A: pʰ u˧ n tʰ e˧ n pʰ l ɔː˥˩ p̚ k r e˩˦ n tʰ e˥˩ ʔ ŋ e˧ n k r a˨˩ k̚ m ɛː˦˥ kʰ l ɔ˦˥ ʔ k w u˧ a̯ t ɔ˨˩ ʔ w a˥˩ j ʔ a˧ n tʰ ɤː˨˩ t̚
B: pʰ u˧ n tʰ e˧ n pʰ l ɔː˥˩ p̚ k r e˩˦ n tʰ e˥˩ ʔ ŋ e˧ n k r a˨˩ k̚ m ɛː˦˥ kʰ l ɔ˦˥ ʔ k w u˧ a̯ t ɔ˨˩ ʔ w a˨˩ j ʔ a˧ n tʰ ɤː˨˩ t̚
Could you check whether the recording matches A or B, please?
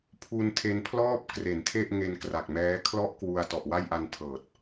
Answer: A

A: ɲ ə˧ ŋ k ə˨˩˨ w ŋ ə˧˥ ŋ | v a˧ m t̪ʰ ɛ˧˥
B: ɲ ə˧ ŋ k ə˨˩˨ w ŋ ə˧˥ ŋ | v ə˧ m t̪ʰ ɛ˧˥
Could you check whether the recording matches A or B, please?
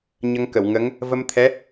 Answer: B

